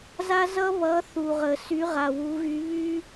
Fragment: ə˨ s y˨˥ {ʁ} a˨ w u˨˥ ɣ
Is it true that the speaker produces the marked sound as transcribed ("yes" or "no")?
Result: yes